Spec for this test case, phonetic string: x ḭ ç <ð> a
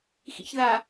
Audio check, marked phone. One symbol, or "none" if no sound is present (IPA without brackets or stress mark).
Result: ð